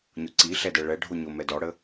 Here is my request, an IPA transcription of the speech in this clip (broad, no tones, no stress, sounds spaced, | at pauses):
ɲ o ǀ i ɬ ɛ d ɛ ɭ ɛ ɖʱ o ɲ o m ɛ d ɔ ɽ ə